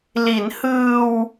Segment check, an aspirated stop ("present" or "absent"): absent